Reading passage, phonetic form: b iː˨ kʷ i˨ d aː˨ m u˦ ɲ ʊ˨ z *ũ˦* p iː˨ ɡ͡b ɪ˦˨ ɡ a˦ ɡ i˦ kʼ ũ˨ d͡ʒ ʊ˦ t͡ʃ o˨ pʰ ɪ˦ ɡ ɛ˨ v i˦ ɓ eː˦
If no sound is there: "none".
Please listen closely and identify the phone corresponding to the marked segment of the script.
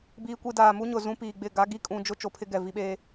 ũ˦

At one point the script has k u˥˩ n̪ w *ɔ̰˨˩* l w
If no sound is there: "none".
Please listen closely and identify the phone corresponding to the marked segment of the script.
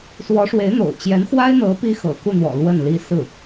ɔ̰˨˩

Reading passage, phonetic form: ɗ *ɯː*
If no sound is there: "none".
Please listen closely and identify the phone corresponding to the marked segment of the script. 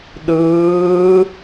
ɯː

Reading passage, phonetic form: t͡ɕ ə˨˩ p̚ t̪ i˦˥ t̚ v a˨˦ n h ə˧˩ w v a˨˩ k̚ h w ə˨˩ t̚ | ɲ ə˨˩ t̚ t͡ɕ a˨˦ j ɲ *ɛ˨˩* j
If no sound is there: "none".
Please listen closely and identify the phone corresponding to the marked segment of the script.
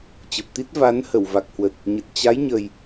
ə˨˩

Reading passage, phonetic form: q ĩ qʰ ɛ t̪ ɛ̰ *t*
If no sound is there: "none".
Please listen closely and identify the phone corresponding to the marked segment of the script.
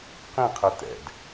d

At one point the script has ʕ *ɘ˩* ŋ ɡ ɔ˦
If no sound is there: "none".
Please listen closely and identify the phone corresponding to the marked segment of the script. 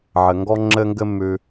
ɘ˩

